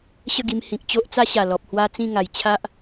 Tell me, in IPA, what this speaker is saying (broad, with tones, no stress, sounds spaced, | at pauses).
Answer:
ɕ ə˥˧ ɡ i˧ m h ĩ˨ k̚ t͡ɕ o˦ ʔ t͡s a˦ ɕ a˨˩ l ɔ˨ p̚ h w a˦ t͡s ĩ˥˧ ŋ a˨˩ j t͡ɕʰ a˦ ʔ